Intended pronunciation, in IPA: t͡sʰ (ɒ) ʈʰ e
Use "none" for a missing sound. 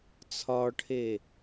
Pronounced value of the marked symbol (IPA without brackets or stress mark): ɒ